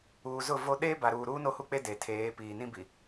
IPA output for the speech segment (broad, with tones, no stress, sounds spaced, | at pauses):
uː˨ z ʊ˦˨ v o˦ ɗ eː˦ b a˨ ɾ uː˨ ɾ uː˦ n o˦ h u˦ k͡p e˦ d e˨ tʰ eː˨˦ p iː˨ n ĩ˦ b i˨